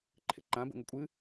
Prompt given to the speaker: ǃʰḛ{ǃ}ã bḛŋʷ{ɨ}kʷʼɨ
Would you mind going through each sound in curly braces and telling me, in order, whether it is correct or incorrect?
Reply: correct, correct

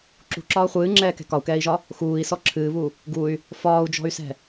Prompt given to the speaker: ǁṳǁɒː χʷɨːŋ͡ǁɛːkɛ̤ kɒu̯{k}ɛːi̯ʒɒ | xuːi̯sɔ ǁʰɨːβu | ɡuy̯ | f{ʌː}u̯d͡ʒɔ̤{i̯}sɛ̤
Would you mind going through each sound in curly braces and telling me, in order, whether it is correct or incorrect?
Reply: correct, incorrect, incorrect

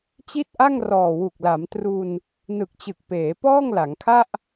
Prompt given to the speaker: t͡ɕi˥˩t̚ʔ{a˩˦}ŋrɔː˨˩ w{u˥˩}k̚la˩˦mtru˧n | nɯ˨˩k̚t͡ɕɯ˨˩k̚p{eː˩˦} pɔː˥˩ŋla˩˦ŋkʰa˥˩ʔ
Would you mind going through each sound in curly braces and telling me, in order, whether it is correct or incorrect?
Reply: incorrect, incorrect, correct

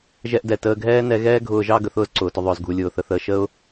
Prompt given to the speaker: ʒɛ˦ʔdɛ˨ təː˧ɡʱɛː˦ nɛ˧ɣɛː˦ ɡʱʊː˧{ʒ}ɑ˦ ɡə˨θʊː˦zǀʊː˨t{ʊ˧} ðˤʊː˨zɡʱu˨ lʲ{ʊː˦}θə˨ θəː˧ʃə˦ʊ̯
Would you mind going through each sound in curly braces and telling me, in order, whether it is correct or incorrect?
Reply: correct, correct, incorrect

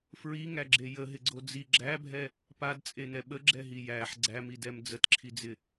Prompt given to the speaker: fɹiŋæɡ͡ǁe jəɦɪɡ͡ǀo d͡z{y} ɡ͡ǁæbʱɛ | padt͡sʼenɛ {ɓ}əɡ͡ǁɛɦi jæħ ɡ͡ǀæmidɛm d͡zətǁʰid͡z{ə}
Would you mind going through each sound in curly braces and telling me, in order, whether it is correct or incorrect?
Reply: incorrect, correct, incorrect

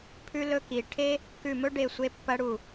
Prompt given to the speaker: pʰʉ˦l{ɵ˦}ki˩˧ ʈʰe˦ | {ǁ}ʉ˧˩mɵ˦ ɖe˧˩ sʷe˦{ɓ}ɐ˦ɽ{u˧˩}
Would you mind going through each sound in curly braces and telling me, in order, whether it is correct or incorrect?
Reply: correct, incorrect, incorrect, correct

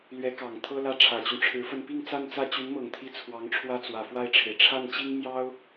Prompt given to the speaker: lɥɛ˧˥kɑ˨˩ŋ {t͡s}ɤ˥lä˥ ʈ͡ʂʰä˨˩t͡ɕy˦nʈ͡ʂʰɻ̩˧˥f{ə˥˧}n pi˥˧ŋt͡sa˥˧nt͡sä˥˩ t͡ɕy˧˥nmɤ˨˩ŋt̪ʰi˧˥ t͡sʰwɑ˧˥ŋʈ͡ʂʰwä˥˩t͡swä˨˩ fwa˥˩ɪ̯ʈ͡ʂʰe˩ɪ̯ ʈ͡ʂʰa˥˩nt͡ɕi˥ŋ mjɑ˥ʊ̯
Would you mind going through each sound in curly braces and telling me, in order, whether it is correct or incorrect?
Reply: incorrect, correct

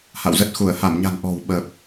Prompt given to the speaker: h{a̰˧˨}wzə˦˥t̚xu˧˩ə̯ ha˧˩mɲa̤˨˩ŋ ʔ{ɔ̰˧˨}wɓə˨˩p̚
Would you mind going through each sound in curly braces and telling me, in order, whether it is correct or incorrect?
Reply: correct, incorrect

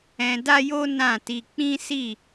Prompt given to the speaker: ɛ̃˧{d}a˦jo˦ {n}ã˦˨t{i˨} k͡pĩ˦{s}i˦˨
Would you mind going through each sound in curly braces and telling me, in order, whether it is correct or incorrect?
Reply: correct, correct, incorrect, correct

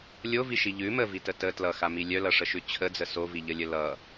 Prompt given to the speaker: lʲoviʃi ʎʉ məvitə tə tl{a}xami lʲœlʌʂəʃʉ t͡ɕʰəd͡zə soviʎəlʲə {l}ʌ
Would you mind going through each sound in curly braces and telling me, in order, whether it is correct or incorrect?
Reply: incorrect, correct

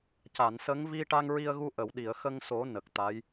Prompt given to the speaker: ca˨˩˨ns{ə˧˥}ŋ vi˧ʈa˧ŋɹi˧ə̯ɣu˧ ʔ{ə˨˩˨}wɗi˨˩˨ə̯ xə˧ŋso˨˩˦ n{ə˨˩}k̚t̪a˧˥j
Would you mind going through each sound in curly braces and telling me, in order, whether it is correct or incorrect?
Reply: correct, correct, correct

